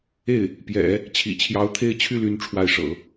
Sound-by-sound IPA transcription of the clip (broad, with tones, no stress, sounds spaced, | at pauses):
e˥˩ ɪ̯ | p j ɛ̰˨˩˦ | t͡ɕʰ ḭ˨˩ t͡ɕʰ j ɑ˧˥ ʊ̯ t̪ʰ e˥˧ ɪ̯ t͡ɕʰ y˥˧ l y˥˧ n ʈ͡ʂʰ w a˥˩ ɪ̯ ʂ ɤ̰˨˩˦